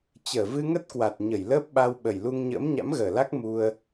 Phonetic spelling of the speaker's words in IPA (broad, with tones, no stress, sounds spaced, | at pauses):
t͡ɕ əː˧˩ v ɨ˧ ŋ ə˦˥ t̚ k w a˨˩ t̚ ɲ ə˧˩ j l əː˦˥ p̚ ɓ a˧ w ɓ ə˨˩ j l u˧ ŋ ɲ ə̰ː˧˥ m ɲ a̰˧˥ m ɣ əː˨˩ l a˦˥ k̚ m u˧ ə̯